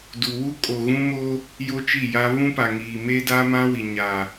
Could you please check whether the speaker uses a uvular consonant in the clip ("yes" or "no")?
no